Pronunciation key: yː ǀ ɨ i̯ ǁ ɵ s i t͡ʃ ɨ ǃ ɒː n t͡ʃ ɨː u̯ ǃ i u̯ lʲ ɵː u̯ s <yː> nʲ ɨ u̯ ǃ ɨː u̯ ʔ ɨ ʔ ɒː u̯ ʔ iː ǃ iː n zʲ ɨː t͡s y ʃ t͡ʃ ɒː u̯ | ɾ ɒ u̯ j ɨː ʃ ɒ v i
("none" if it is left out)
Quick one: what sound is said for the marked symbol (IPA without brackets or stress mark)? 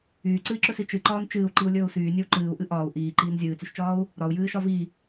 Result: yː